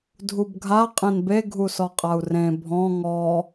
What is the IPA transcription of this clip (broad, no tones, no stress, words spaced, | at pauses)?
dʱubɡʱa qʼẽnbe ɡʱusɔqʼau̯rẽ bʱɔ̃ ŋɔ